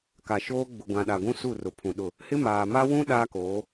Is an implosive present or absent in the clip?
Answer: present